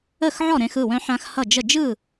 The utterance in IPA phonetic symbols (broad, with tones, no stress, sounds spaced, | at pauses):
ə˥˩ x ʕ ɔ˥˩ ɾ ẽ˧ x ɯ˥˩ w œ̃˧ ħ ã˧ x h ʌ˥˩ d͡ʒ ə˥˩ d͡ʒ ɯ˥˩